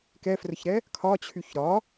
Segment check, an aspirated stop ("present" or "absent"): present